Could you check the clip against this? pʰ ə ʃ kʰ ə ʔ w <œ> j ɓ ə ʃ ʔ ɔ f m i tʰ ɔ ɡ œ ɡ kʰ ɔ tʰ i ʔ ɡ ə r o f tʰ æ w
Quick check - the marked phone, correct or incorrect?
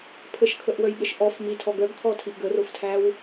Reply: correct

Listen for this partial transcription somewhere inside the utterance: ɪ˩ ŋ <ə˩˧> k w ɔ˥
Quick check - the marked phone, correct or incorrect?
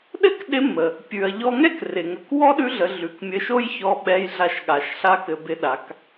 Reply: correct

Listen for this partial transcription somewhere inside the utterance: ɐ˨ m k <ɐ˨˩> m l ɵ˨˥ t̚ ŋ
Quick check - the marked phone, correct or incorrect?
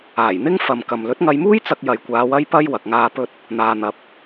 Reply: incorrect: ɐ˨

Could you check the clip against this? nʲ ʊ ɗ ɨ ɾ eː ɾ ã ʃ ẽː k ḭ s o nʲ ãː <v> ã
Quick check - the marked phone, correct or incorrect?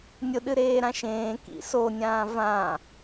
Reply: correct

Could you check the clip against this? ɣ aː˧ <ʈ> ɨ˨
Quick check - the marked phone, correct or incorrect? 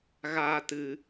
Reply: incorrect: t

